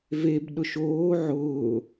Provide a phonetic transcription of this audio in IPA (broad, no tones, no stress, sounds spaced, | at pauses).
v e b ɗ ʊ ʃ oː ʕ ʊː